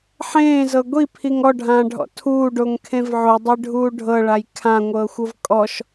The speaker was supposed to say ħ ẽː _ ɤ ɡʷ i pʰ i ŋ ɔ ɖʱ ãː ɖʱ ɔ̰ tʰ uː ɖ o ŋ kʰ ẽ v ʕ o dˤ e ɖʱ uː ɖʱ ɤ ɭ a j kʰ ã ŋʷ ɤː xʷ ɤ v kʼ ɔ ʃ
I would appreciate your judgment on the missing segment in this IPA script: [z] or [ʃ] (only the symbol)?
z